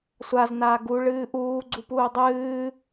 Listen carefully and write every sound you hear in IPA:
sʷ a z n aː ɡ u ɭ ɨː ʔ uː ɡ͡ǀ u p uː dˤ ɨː

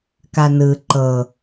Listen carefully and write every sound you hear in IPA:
k a n ɯ ǃ ɤ

